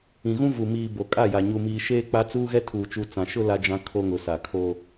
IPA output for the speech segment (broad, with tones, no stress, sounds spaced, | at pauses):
ĩ˨ ɣ ũ˦ v u˨ m iː˨ b o˨ kʼ a˦˨ j a˨ ɲ u˨ m iː˨ ʃ eː˦ k͡p a˦ t͡s uː˦ ɣ ɛ˦ tʰ uː˨ t͡ʃ u˨ t͡s ã˨ ʃ ʊ˦ l a˦ d͡ʒ ã˦ kʰ o˦ ŋ ʊ˨ s a˨ kʰ o˦